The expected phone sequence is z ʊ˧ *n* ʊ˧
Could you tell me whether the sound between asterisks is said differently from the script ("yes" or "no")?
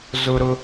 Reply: yes